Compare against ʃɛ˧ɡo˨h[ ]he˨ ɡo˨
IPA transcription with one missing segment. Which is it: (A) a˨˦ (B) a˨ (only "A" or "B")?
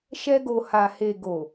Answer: B